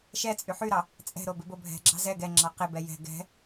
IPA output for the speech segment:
ʃɛt͡sʼy ħyɾɑ | t͡sʼɛ̤ɾobɪbo bʱɛ̤ɡ͡ǁɑ̤ zɛ ɡɛŋ͡ǁɑ qɪbɛ jɛ̤ ɡɛ̤

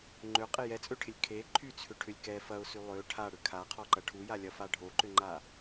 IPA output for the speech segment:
ŋ͡ǃøqʼɪ jɛt͡sʼøʈʰɪlʲ kʰe ǃʰyt͡sʰʏʈʰʏlʲ kɛ fɐʊ̯sy lˠø ʈʰaɽʏ kʰaqʰɔǃɐ ʈʰujalʲɐfa ɖʱoǃʏŋ͡ǃa

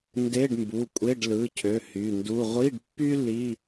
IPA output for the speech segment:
nde˧˥˧ɖmbu˩˧˩kʷʼe˧˥˧ɖ lɯ˩˧˩cʰø˩˧˩ hy˩˧˩ndu˧˥˧ ʁʷi˧˥˧ɖpːy˥ li˧˥˧

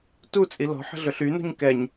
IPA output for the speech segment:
tut͡sʼi lɔ̤ħə̤ɮɵɬ ynṳɲ kɛɲ

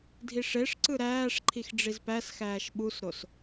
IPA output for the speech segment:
dʱiʂeʂǀɯ ɾæːʂǃʰix ɖ͡ʐizpæsxæːʃ ɓusɾos

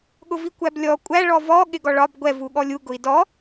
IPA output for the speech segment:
ɠʊvikʷæblʲɔ kʷʼæ ɭɔvɔ ɠɪɡɔɭɒb ɡʷɛv uɠɔlʲu ɡʊi̯dɔ

